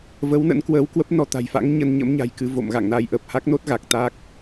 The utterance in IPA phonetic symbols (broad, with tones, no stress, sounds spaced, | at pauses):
v ə˨˦ w n ə̰˧˥ n k w əː˨˦ w k w ə˦˥ p̚ n ɔ˨˦ t̪ a̤˨˩ j f a̰˧˥ ŋ ɲ ə˧ n ɲ ə̰˧˥ m ɲ a̤˨˩ j k ɨ˧ v o̰˧˨ m ɣ a̰˧˨ ŋ n a˨˦ j ʔ ə˨˩ p̚ h a˦˥ k̚ n o˦˥ t̚ ɣ a˨˩ k̚ t̪ a˦˥ k̚